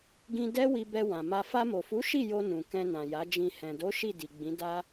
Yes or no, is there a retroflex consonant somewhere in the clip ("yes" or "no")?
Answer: no